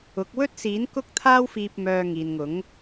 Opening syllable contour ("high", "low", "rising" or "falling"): rising